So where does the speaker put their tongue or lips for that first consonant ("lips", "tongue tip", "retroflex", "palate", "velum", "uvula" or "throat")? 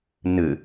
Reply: tongue tip